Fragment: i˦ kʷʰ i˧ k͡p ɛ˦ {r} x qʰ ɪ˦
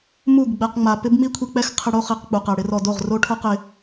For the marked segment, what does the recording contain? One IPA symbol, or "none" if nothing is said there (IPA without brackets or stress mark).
none